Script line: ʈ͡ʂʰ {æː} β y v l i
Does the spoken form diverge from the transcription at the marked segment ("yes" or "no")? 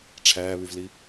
no